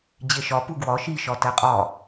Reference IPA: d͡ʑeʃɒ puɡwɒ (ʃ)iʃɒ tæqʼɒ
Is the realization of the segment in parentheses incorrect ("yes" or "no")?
no